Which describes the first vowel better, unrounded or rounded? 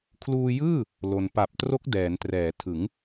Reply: rounded